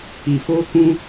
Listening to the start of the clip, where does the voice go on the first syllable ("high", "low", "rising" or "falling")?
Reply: low